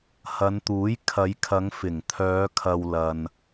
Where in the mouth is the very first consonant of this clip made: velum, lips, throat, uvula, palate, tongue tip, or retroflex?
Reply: throat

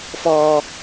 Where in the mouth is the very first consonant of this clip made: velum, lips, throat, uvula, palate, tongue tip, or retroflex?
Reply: lips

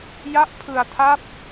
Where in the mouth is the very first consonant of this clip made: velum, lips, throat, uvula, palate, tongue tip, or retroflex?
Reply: palate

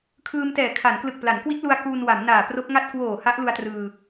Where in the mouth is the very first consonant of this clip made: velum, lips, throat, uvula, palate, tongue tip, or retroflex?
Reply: velum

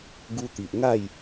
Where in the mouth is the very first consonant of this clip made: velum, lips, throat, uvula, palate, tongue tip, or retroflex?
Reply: velum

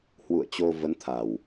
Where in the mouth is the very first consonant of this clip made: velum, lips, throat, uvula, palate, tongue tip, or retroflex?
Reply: throat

